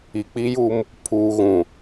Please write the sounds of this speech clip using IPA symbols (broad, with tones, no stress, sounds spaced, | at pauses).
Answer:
i˨ k͡p i˦ j u˦ m | pʰ uː˨ ɣ ũ˨